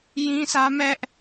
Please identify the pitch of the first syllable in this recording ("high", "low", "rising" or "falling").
high